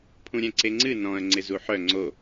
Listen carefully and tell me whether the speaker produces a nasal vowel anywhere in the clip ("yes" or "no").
yes